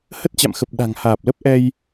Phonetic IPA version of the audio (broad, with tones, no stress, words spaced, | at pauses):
hə˦˥t̚t͡ɕa̰˧˨mxə˨˩p̚ ɗa̤˨˩ŋ haː˨˩p̚lə˦˥p̚ ʔɛ˧j